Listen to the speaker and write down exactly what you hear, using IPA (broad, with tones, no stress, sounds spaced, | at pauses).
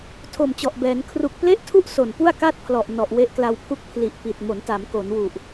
tʰ o˨˩ m t͡ɕ ɔ˨˩ ʔ b ɛː˩˦ n kʰ r u˨˩ k̚ p l e˥˩ ʔ tʰ u˥˩ ʔ s o˨˩ n p u˥˩ a̯ k a˥˩ t̚ pʰ l ɔ˨˩ ʔ n ɔ˨˩ ʔ w e˦˥ ʔ k l a˧ w pʰ u˥˩ k̚ pʰ l i˨˩ ʔ p i˨˩ t̚ m o˩˦ n t a˩˦ m k o˩˦ n w u˨˩ ʔ